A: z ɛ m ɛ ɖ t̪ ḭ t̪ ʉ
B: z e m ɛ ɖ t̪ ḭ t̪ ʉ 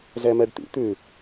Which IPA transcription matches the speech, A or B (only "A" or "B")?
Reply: A